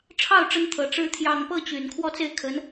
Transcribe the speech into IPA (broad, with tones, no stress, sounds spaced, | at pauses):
ʈ͡ʂʰ ɑ˥˩ ʊ̯ ʈ͡ʂ ə˧˥ n t̪ʰ ɤ˨˩ ʈ͡ʂ ɻ̩˧˥ t̪ʰ j ɑ˨˩ ŋ p ɤ˥˩ t͡ɕ y˨˩ n kʰ w ɔ˥˧ t͡s e˥˩ ɪ̯ kʰ ə˧˥ n